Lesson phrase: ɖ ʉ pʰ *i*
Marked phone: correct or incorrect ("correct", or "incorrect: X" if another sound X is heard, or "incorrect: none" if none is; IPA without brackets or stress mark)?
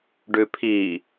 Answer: correct